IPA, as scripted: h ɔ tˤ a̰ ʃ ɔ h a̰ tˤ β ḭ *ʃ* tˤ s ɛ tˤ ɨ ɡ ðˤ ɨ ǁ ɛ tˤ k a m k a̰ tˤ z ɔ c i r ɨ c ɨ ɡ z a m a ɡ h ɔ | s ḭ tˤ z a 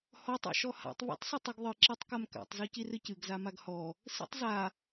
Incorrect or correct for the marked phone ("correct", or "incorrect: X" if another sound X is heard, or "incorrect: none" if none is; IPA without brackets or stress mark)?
incorrect: none